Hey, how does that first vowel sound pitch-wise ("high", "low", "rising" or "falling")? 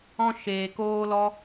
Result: high